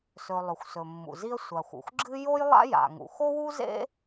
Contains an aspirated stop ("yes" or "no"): no